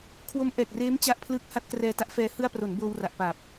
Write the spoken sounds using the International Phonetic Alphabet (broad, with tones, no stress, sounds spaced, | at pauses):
kʰ w o˦˥ m ʔ ɛː˨˩ k̚ r eː˦˥ m t͡ɕ a˦˥ ʔ pʰ l ɯː˦˥ k̚ h a˦˥ t̚ k r ɛː˧ t a˦˥ ʔ f ɛː˧ h ɯ˧ a̯ p r o˩˦ n b oː˧ w r a˨˩ ʔ p a˨˩ p̚